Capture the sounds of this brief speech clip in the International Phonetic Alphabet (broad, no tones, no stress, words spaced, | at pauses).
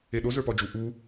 eɗo zə˞pɔd͡ʒu ʔu